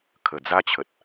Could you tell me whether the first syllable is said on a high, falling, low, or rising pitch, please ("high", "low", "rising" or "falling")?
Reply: low